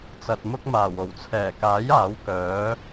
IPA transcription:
t͡s ɐ˨ t̚ m ʊ˥ k̚ m aː˨˩ w o˨˩ w t͡sʰ ɛː˨˩ k aː˨˥ j aː˨˥ w k œː˨˥

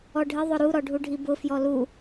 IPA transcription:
ɔ ɖʱ ɪ ðˤ ʊ ɾ u ɾ ɔ ɖʱ u ɖʱ i b ʊ f j ɔ l u

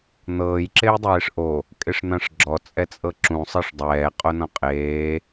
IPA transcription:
n̪ ɤː j ǁ e j dˤ eː ʂ ʔ o | kʼ e ʂ n̪ ã ʂ ɡ͡ǁ ɔ t͡sʼ ɛ t͡sʼ ɤ ǁ ũ sˤ ɤ ʂ dˤ ɛː qʼ o n ɔ̃ qʼ eː

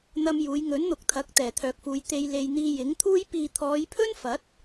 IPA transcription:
n̪ ɐ˧ m j uː˨˧ j ŋ ɵ˨˥ n n̪ ʊ˨ k̚ t̪ʰ ɐ˨˥ k̚ t̪ ɛː˨˩ t̪ʰ œː˨ k̚ f uː˨˧ j t̪ e˧ j l e˧ j n̪ iː˧ j ɪ˨˥ ŋ t̪ʰ uː˥ j p iː˨ t̪ʰ ɔː˨˧ j pʰ ɵ˥ n f ɐ˨˥ t̚

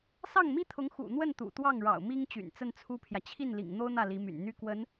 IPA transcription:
s ɑ˥˩ ŋ m i˥ t̪ʰ ʊ˧˥ ŋ x ṵ˨˩ n̪ w ə˥˩ n t̪ ṵ˨˩ t̪ w ɑ˥˩ ŋ ɻ ɑ̰˨˩ ʊ̯ m i˥ ŋ t͡ɕ y̰˨˩ n t͡s ə˥˩ n t͡sʰ u˥ pʰ j ä˨ t͡ɕʰ i˥˩ n l ḭ˨˩ ŋ n̪ o˥ ʊ̯ n̪ ä˥˩ l i˧˥ m y̰˨˩ n n̪ y˥ k w ə˧˥ n

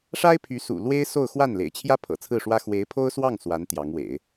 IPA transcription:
ʂ a˥ ɪ̯ pʰ y˧˥ s ṵ˨˩ l w e˥ ɪ̯ s o˥˧ ʊ̯ x w a˥˩ n l ḛ˨˩ ɪ̯ t͡ɕʰ j ä˥ pʰ ɤ̰˨˩ t͡sʰ ɹ̩˥˩ ʂ w ä˥ x w e˧˥ ɪ̯ pʰ o˥ ʊ̯ s w ɑ˥˩ ŋ s w a˧˥ n t̪ j ɑ˧˥ ŋ w ḛ˨˩˦ ɪ̯

